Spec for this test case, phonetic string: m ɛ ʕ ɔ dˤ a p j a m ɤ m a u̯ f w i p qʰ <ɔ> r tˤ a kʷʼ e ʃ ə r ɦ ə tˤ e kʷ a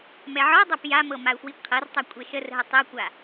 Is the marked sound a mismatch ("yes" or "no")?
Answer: yes